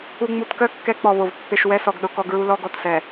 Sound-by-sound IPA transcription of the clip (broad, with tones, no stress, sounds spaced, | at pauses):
u˨ ŋ͡m u˨ t k œ˦ kː ɛ˦ k͡p ɔ˨ β o˨ v pː e˨ ʃ w ɛ˦ s ɔ˨ ɡ ɗ ʊ˦ k ɔ˦ ɡ ɹ u˦ l ɔ˦ ɡ ɔ˨ t s ɛ˨